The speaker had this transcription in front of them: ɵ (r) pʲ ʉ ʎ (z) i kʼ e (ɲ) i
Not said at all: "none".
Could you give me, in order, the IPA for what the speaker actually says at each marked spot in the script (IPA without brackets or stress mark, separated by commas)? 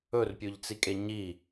r, t͡s, ɲ